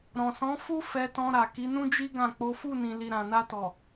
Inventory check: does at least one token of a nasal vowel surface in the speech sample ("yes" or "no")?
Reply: yes